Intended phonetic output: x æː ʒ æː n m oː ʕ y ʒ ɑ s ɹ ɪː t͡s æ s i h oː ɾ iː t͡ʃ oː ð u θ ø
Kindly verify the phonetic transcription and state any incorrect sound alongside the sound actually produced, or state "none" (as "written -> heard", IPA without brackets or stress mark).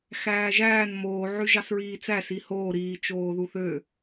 ɪː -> iː